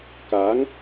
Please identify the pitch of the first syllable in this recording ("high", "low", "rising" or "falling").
rising